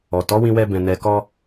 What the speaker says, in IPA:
ɔ˨ t ɔ˨˦ w ĩ˧ w ɛ˧ b ɛ̃˨ n ɛ˨ k ɔ˧

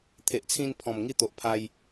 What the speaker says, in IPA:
t̪ʰ e˨ ʔ t͡sʰ ĩ˧ n pʰ ɔ̃˨˩ m ŋ i˧ t̪ o˨ ʔ pʰ a˧ j

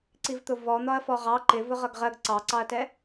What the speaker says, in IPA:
ǀ i v t̪ ʊ v ɔ n̪ ɒ ɐ̯ f ɔ ʁ ɑ ǃ ɪ v ʊ ʁ ʌ ɡ ʁ ɜ ɡ ǀ ɑ ǀ ɑ ɐ̯ t ɛ

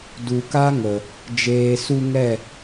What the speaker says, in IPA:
d u˨ k a˦ ŋ ə˨ | d͡ʒ eː˨ s u˧ ŋ ɛ˦˨

